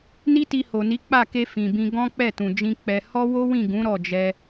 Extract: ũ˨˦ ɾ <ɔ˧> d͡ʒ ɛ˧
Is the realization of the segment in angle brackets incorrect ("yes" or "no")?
yes